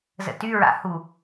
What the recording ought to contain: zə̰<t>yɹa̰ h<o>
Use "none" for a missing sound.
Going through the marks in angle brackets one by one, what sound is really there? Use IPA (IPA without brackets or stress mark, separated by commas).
t, u